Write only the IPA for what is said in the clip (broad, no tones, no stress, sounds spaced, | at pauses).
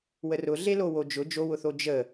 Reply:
w ə r ʊ ɮ e l o w o d͡ʒ ʊ d͡ʒ o w ʊ θ o d͡ʒ ə